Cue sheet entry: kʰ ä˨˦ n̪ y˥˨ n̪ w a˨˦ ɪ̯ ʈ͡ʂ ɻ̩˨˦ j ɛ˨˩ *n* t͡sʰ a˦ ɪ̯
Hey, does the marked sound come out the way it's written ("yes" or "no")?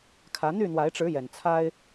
yes